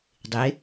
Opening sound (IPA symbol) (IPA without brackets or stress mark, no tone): dˤ